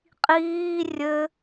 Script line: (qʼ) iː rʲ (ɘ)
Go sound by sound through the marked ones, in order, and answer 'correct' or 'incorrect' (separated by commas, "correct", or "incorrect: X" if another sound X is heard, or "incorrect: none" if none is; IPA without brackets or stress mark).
correct, correct